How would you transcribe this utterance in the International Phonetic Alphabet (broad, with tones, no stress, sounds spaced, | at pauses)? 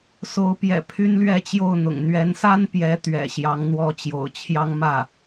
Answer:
s o˧˥ ʊ̯ p j ɛ̰˨˩ pʰ y˥ n l ɥ ɛ˥˧ t͡ɕ j o˥˩ ʊ̯ n̪ ʊ̰˨˩ ŋ n̪ ɥ ɛ˧˥ n s a˥ n p j ɛ˧˥ t̪ ɥ ɛ̰˨˩ ɕ j ɑ˧˥ ŋ n̪ w ɔ˥ t͡ɕ j o̰˨˩ ʊ̯ t͡ɕʰ j ɑ˥ ŋ m ä˥˩